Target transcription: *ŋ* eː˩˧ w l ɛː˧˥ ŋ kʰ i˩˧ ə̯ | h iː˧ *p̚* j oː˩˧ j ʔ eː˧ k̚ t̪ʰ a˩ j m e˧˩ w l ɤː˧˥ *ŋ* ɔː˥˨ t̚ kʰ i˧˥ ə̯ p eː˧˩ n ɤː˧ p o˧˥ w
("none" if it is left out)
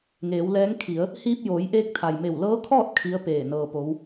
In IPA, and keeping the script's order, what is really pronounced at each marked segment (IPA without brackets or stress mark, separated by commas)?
ŋ, p̚, kʰ